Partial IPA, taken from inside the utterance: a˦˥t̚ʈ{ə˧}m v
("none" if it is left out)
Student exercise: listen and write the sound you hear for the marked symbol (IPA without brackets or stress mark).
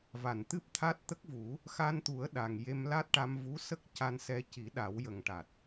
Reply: a˧